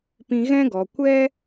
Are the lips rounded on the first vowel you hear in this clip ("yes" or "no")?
no